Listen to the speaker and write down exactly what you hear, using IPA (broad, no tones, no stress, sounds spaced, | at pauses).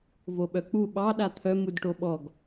v o ɓ œ k͡p u ɓ ɑ ɗ a t̪ʰ œ m u d ʈ o ɓ ɔ ɡ